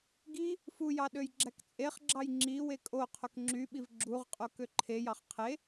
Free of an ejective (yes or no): no